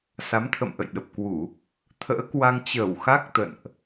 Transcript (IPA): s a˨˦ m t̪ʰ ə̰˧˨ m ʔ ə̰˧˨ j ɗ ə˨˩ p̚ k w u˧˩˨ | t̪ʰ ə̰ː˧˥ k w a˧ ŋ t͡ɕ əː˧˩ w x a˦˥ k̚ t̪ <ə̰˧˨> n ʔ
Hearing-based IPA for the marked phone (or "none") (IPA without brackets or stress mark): ə̰˧˨